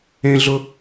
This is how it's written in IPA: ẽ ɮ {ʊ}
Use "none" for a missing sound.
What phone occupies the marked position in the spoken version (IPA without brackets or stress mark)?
ʊ